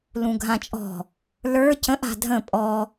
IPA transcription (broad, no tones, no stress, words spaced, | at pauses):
lũɡʱãt͡ʃʼɔ̤ | lə˞ cə̃ʔ a̤dʱə̃ pʼɔ